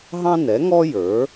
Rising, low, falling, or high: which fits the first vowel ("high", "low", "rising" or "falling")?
high